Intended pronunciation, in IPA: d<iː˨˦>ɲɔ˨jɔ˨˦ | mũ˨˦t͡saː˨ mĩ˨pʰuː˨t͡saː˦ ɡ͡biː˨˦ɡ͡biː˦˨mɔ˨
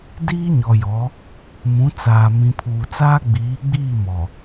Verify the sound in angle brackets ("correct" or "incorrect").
incorrect